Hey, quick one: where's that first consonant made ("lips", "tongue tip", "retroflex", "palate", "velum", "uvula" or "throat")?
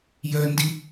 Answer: palate